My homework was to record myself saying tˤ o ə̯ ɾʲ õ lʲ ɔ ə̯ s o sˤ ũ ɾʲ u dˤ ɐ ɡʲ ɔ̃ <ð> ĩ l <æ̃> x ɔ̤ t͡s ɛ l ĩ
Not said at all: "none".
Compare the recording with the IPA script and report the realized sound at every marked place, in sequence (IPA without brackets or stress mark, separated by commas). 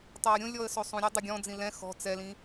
d͡z, ɛ̃